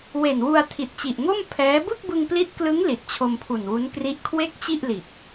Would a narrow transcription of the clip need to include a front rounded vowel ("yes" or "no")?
no